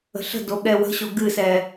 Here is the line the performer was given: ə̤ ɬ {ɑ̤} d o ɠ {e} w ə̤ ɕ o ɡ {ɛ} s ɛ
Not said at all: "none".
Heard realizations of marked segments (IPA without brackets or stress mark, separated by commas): ə̤, ɛ, ɨ